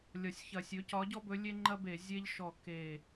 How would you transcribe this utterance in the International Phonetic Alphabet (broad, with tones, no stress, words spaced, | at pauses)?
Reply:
lʲɒ˧˩sʲçɐ˧˩ sʲɵ˨˥ cɒ˨˥ɟɔ˦ bɵ˨˥lʲe˦ŋ͡ǃɐ˦be˧˩˧ zʲe˦ʎ ʃɔ˧˩ ke˧˩